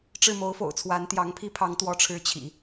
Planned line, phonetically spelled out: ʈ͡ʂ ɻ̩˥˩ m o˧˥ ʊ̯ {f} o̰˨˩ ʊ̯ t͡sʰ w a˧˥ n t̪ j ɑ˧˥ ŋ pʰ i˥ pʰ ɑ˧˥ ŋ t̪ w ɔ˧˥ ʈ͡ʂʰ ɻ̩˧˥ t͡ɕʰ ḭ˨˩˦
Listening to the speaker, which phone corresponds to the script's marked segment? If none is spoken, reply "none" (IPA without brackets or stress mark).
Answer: f